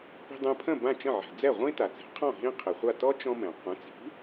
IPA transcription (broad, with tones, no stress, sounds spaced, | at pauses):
p i̤˧ dˤ ɛ̃˧ pʰ ə̃˥˩ b ã˥˩ t͡ʃ ə̃˥˩ ʕ ɛ̤˩ d͡z ɛ˥˩ ʁʷ ĩ˥ t a˩ t͡s e̤˩˥ qʰ ɔ̃˥˩ ɦ ĩ˥ qʰ e˩ χʷ a˥˩ t ɔ˥ t͡ʃ ɔ̃˥ m ɛ̃˩ qʷ ə̃˩˥ t͡s i̤˩˥